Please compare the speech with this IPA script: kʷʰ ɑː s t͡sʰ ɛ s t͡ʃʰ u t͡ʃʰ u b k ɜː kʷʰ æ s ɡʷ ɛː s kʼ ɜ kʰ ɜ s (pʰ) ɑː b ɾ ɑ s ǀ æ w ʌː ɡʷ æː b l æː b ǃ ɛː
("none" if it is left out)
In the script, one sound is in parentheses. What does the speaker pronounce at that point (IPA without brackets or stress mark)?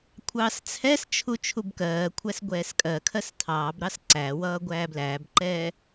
tʰ